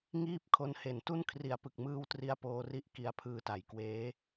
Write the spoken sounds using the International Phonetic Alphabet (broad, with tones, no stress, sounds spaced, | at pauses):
ŋ iː˥˩ p̚ kʰ o˧ n h e˩˦ n t u˥˩ n kʰ r i˩˦ a̯ p ɯ˨˩ k̚ m ɯː˧ w t r i˦˥ a̯ p oː˧ r i˦˥ ʔ k i˧ a̯ pʰ ɯː˧ t a˩˦ j k w eː˦˥